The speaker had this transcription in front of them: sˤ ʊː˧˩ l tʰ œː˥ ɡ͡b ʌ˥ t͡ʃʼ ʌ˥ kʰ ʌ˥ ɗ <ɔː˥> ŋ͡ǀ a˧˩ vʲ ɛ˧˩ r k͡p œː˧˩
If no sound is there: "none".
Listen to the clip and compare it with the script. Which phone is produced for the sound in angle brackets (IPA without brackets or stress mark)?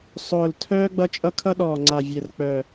ɔː˧˩